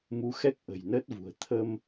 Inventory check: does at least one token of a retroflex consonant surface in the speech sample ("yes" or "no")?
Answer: no